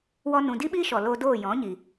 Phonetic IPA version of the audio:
w ɔ˦ n ũ˧ d i˦ ɓ iː˦ ʃ ɔ˨ l o˧ d oː˦˨ j ɔ̃˨˦ ɲ i˨

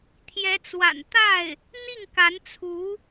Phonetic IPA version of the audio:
t̪ʰ j ɛ˧˥ t͡s w a̰˨˩ n t̪ a˥˩ ɪ̯ | n̪ i˥˩ ŋ k a˧˥ n t͡sʰ u˧˥

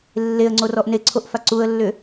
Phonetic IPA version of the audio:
lː e ə̯ ŋ͡ǀ o r ɔ ʔ n e ǀʰ o ʔ f a ǀ u ə̯ lː ʏ

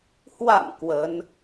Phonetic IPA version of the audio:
h w a̰˧˨ m k w ə˨˦ n

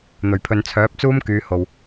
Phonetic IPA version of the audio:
n̪ ɵ˨˩ ɥ pʰ ɵ˨ n t͡sʰ œː˨˥ p̚ t͡s uː˥ m k yː˨˧ h o˨ w

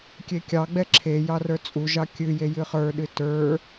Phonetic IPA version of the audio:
kʲ e kʲ ɑ ɡ͡b ɛ ǁʰ e j ɑ r ə˞ t͡sʼ u ʒ ɑ kʲ ɨ j e j ɨ χ ə˞ ɗ ɨ t ə˞

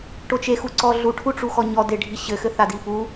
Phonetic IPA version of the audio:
ʈ o t͡ʃ e x u ǀ ɔ ɮ u ʈʰ u ʈ͡ʂ u x ɔ ɲ ɔ d e ɖʱ i ɕ ɘ x ɘ θ a d i p u

